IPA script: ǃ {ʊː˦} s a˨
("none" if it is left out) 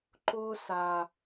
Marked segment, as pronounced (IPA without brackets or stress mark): ʊː˦